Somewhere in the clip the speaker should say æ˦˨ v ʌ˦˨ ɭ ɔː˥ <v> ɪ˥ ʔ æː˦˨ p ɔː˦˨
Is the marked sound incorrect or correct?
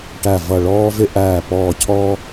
correct